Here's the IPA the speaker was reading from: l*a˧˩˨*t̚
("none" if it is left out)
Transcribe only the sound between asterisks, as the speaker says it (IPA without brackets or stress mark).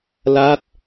a˦˥